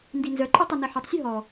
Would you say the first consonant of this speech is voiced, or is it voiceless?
voiced